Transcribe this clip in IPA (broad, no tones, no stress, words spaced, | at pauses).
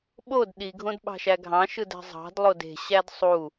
ɓod ɗiɡʱõd ɓɑ̤ʃæɡʱɑ̃ʃɯd æ̤zˤɑ̤dlˠod e̤ɕæd sˤu